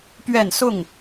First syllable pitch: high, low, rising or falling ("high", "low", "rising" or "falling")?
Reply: falling